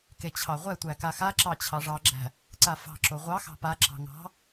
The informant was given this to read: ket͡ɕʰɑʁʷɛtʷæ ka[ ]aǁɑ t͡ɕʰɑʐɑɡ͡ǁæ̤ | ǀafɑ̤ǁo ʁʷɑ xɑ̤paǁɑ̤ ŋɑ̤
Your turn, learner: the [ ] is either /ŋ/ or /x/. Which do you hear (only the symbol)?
x